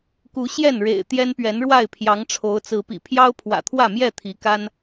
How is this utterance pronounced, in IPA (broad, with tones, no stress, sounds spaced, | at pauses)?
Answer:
k u˨˦ ɕ j ɛ˥˨ n ɻ ḛ˨˩ ɪ̯ t̪ j ɛ˦ n p ɥ ɛ˨˦ n ɻ w a˥˨ ɪ̯ pʰ j ɑ˨˦ ŋ ʈ͡ʂʰ o˨˦ ʊ̯ t͡s ɹ̩˨˦ p ḭ˨˩ pʰ j ɑ˦ ʊ̯ pʰ w ä̰˨˩ t̪ʰ w ä˥˨ m j ɛ˥˨ t̪ʰ i˨˦ k a˦ n